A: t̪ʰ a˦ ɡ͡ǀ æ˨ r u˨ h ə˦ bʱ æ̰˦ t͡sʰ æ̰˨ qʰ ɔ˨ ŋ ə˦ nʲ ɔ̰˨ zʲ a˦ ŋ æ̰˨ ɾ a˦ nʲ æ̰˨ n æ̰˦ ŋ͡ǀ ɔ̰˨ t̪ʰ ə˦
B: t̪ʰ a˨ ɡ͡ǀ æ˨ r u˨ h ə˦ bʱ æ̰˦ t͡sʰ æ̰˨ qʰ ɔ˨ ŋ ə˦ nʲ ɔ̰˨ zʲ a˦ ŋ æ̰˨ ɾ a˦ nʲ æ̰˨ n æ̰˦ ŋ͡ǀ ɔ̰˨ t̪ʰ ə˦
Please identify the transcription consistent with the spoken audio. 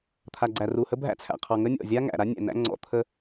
B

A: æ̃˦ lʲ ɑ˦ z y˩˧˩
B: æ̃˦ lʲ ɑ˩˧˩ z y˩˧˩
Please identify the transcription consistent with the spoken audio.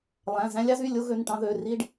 A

